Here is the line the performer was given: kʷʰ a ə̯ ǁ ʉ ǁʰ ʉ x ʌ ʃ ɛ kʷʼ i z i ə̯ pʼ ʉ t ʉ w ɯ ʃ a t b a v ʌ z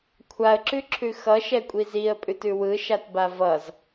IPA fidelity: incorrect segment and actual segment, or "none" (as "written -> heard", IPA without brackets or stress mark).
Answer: none